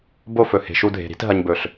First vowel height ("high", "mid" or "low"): mid